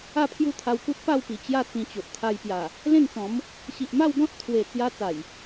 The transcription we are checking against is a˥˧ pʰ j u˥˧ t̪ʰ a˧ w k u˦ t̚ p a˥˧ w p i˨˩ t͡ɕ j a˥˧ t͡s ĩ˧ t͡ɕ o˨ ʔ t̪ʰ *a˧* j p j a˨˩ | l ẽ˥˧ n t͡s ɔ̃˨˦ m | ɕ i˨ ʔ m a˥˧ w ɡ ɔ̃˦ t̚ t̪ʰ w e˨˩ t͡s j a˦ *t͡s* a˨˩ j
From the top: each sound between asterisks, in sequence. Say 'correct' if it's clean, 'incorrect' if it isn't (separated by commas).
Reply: correct, correct